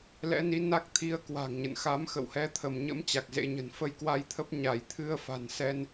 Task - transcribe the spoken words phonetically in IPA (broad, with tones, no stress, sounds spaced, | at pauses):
l ɛ̰˧˥ n i˨˦ n a˦˥ k̚ t̪ʰ i˧ ə̯ k w a̤˨˩ ŋ ɲ ə̰˧˨ n x a˨˦ m x ə̰˧˨ w h ɛ˨˦ t̪ʰ ə˧˩ m ɲ ə̰˧˥ m t͡ɕ a˨˩ k̚ z ḛ˧˥ ɲ ə̤˨˩ n f ə˧ j k w a˧ j t̪ʰ ə˦˥ p̚ ɲ a˧˩ j t̪ʰ ɨ˧ ə̯ f a̤˨˩ n s ɛ˧ n